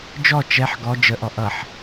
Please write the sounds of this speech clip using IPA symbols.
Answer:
d͡ʒ ɔ t͡ʃ ɛ ħ ɡ ɔ d͡ʒ ə ʔ ɔ ʔ ʌ ħ

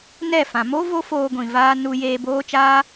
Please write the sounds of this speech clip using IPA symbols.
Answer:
n ɛ˦˨ f ã˨ m o˦ v o˦ f oː˧ ɡʷ ĩ˨ v aː˧ n u˧ j eː˧ b oː˦ t͡ʃ aː˦

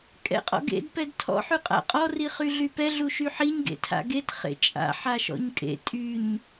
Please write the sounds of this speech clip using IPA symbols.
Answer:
kʼ ɛ̰ qʼ ɔ̰ ɡ ḛ d p ɛ d tʰ ɔ̰ ħ y qʼ a̰ qʼ ɔ r i χ y ɮ y p ɛ ɮ u ʃ y ħ i ɲ ɡ ḛ tʰ a̰ ɡ e t χ ḛ t͡ʃʼ a̰ ħ a ʃ ɔ̰ ɲ kʼ ḛ tʼ y ɲ

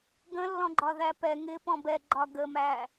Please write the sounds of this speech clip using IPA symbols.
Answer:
ɡ ə̃ lː ɔ̃ ɡ͡ǃ ɒ ð æ p ɛ ŋ ɪ p ɔ̃ b ɛ ɡ͡ǃ ɒ ɡ ə m æ

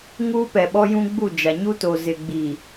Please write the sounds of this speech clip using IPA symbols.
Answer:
ŋ uː˦ p ɛ˨ ɓ ɔ˦ j ũ˦ ɡ͡b u˦˨ d͡ʒ a˨ ɲ u˦ t o˨ z ɪ˨ ɡ͡b i˨

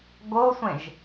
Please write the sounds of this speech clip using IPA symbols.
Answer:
ɡ o sʷ ẽ ʒ

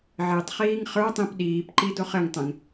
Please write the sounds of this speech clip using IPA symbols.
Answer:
ʕ ɘ tˤ χ iː ŋ χ ə˞ tˤ ĩ p ɗ iː p ǃ i d o χ ɘ ŋ tˤ ɛ̃ ŋ

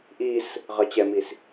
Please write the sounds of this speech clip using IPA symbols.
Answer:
ʔ i s | ʁ ʌ t͡ɕ ɛ m i s

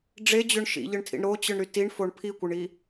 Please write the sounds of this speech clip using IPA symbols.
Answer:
ɖ͡ʐ e d͡ʑ ø ɳ ʃ ḭ ʎ ɯ ɳ tʰ ḭ ɳ ɾ o t͡ɕ ɯ ɳ ɾ y t i ɳ f o ɳ pʰ i kʷ ɯ ɳ i

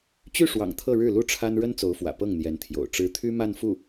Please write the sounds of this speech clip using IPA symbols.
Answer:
t͡ɕ y˥˩ ʂ w ɑ̰˨˩ ŋ t̪ʰ ɤ˥˧ ɻ ɻ̩˥˩ l u˥ ʈ͡ʂʰ a˥ n ɻ ə˥ n t͡s o˧˥ ʊ̯ f w ä̰˨˩ p ɤ˥˩ ŋ n̪ j ɛ˧˥ n t̪ʰ j o̰˨˩ ʊ̯ ʈ͡ʂ ɻ̩˧˥ t̪ʰ y˥ m a˥˧ n f u˥˩

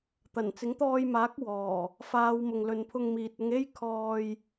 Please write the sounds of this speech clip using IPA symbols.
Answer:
t̪ ɐ˨˩ n t͡s ɪ˨˥ ŋ t̪ ɔː˧ j m aː˨˥ k̚ w ɔː˨˩ | f aː˨˧ w m ʊ˨ ŋ l ɵ˨˧ n pʰ ʊ˧ ŋ m iː˨ t̚ ʊ˧ ŋ e˥ j kʰ ɔː˧ j

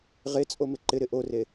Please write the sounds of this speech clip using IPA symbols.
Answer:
ʁ e t͡sʼ o m ɪ ǃ ɪ ɾ ɪ ʔ o r e

